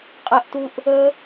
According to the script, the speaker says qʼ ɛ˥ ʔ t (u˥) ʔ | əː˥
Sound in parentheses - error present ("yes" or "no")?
no